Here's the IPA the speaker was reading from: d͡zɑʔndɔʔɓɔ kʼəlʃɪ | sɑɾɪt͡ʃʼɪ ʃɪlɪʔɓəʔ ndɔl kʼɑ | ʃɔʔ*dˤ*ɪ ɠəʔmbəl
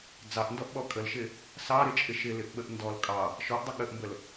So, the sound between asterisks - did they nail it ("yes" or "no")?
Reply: yes